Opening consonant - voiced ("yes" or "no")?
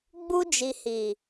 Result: yes